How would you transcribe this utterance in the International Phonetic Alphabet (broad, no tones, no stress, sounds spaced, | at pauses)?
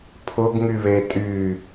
pʰ ʊ ɡ ŋ y β e tʼ y